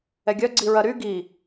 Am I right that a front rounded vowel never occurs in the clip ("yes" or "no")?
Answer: no